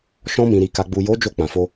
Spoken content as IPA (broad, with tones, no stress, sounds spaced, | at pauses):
ʃ ɔ̃˧ m ĩ˨ ɾ i˨ k a˨ ɡ͡b u˨ j o˨˦ d͡ʒ o˧ k͡p ã˨ f o˧